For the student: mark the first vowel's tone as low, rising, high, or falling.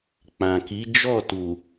low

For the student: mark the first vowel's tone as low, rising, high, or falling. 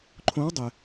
rising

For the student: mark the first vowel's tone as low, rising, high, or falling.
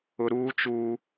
high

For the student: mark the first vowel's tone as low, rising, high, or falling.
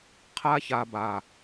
high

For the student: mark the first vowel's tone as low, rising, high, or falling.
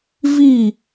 falling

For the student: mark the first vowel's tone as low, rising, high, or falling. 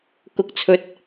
low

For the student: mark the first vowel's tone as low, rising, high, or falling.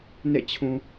falling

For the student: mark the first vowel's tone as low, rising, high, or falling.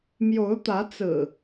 rising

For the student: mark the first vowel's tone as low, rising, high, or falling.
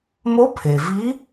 rising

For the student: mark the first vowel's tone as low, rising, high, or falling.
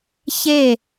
falling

